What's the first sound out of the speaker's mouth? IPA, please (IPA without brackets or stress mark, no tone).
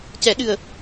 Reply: c